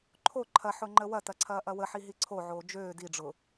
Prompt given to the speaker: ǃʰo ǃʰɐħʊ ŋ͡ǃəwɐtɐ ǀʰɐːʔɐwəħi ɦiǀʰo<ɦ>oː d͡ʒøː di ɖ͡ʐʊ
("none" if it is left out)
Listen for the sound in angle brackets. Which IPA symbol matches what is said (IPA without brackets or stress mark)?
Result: ʕ